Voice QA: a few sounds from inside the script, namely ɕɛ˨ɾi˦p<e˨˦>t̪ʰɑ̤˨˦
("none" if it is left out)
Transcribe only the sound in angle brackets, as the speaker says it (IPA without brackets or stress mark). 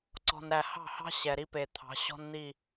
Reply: e˨